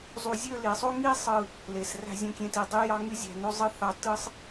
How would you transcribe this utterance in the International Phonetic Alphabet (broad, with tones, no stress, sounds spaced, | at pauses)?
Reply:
zˤ u˧ zʲ ø˥˧ l i˩˧ sˤ o˥ ŋ i˥ sˤ ɯ˧˩ | l e˩˧ s r æ̤˥˧ zʲ õ˥˧ kʲ ẽ˥˧ t i˧˩ dˤ y˥ j ɑ˥ ŋ y˥ zʲ æ̤˧˩ n o˥ zˤ ɯ˥ θ ɑ˧ t ɯ˥ sˤ